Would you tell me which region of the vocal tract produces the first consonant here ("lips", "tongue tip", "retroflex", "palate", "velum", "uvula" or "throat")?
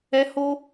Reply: throat